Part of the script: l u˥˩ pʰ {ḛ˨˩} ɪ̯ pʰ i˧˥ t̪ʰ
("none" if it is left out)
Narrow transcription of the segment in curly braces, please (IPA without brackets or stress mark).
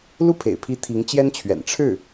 ḛ˨˩